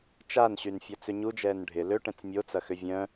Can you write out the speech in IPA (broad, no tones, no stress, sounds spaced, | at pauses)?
t͡ʃ a n ɕ y n fʲ ɐ t͡s ʏ ɲ u d͡ʒ ɛː n ɖʱ ɪ l ø ʈ ɛ̃ t͡s mʲ o t͡s ɐ x ʏ vʲ œ̃